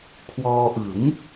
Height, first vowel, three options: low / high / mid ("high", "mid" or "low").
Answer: mid